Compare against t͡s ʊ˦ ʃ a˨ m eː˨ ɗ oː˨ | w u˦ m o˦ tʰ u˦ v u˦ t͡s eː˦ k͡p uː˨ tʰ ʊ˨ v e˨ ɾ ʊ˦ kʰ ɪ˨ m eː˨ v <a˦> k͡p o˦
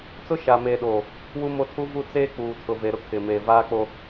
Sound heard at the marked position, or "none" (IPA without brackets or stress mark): aː˦